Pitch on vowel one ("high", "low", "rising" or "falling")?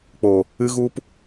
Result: low